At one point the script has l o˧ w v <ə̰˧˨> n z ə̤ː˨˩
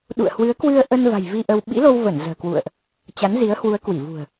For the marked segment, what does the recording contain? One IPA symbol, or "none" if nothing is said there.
ə˧˩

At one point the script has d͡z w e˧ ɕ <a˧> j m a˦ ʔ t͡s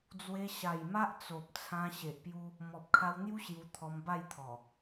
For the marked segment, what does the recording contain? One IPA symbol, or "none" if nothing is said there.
a˨˩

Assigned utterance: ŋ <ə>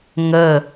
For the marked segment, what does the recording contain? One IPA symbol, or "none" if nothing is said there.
ə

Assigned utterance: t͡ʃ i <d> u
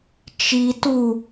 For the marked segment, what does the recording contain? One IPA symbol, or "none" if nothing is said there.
t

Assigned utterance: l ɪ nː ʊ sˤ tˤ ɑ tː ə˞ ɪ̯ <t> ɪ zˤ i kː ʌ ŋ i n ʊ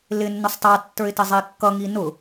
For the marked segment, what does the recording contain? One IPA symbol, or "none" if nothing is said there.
t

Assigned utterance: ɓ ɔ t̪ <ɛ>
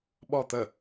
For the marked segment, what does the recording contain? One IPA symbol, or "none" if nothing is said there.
ə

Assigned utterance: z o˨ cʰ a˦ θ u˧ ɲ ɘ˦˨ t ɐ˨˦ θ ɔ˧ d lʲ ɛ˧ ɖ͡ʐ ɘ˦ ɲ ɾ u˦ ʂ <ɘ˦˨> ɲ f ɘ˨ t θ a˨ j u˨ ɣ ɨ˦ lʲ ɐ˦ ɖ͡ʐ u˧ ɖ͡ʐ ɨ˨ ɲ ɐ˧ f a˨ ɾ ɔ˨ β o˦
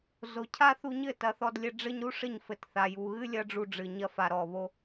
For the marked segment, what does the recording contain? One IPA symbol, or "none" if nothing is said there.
ɘ˦˨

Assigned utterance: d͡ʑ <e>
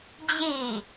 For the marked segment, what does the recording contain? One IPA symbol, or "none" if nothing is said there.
i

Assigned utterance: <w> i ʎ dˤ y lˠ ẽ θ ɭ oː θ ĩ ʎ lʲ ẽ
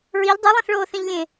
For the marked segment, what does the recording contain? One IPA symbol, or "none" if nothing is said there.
ɹ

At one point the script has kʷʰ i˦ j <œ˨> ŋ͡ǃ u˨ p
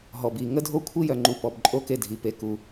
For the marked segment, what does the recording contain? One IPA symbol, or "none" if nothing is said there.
œ˨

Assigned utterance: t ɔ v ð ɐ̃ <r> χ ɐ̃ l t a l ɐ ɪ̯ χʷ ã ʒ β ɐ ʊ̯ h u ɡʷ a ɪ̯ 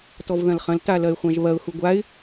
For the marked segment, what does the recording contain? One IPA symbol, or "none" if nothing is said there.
l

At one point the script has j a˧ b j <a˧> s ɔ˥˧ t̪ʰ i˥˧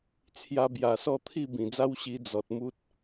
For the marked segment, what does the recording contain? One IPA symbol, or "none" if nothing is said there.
a˨˩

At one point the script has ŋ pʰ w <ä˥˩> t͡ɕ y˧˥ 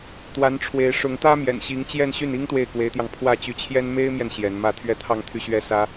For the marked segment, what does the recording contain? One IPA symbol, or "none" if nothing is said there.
ä˥˩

